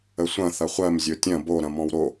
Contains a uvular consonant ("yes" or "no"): yes